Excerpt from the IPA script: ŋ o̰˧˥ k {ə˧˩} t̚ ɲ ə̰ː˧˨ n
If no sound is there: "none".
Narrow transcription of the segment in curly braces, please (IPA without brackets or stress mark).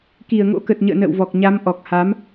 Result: ə˨˩